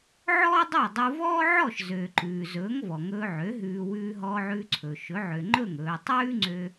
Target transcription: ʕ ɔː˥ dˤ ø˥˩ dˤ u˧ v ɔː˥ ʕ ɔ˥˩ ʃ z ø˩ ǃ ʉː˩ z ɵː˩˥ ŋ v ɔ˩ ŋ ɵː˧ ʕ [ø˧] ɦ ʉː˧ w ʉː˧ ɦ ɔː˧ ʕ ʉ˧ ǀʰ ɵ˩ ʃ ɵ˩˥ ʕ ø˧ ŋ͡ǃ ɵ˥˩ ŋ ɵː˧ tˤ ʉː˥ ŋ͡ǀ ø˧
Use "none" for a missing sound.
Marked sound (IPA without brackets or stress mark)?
ø˩˥